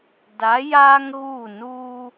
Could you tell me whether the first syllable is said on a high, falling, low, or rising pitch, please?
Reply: rising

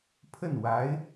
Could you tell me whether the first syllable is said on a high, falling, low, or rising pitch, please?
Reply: falling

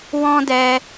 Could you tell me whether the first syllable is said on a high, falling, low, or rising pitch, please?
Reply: high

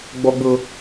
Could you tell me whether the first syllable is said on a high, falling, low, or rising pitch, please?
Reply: high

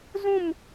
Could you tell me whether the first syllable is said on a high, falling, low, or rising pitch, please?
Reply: falling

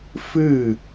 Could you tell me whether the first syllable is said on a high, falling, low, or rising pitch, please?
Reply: falling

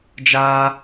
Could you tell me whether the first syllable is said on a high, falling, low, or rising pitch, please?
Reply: high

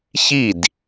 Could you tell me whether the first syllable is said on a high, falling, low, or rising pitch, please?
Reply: falling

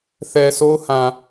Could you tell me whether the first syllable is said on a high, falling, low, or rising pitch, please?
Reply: low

